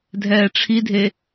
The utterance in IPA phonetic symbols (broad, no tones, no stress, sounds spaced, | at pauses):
dʱ ɛː ʈ͡ʂʰ i dʱ e